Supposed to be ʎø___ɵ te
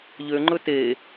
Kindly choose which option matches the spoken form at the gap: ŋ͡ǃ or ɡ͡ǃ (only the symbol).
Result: ŋ͡ǃ